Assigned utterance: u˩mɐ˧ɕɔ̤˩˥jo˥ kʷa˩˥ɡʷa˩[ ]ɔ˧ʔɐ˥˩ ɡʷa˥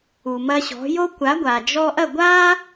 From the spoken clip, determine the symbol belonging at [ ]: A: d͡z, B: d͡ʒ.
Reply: B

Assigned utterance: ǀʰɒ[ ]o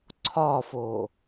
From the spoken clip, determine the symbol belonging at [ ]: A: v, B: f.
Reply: B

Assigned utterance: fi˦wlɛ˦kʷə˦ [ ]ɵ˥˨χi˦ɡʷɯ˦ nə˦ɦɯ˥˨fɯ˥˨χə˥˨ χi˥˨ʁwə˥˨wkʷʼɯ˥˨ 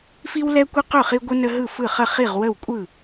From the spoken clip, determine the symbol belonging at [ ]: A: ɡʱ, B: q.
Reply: B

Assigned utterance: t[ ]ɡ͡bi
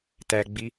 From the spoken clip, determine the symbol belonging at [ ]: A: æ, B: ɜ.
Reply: A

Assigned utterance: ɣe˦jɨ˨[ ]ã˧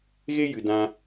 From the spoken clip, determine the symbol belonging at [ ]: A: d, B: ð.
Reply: A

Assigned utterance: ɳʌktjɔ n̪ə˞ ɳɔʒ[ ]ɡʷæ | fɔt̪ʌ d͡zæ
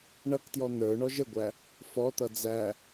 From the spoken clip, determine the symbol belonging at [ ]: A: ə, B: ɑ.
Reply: A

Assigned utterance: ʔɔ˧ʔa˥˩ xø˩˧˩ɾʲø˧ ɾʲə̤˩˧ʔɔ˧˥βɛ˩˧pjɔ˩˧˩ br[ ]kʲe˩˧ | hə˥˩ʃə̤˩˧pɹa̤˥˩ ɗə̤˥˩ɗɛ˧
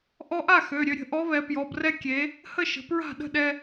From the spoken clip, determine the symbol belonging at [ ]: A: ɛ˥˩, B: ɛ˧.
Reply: B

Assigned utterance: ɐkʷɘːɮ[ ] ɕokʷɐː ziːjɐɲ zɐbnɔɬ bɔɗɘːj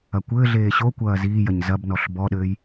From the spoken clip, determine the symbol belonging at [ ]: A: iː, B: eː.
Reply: B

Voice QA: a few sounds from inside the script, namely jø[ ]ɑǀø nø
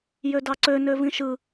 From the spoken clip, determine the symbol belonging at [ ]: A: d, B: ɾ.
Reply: A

